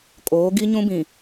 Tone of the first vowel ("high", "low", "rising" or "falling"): rising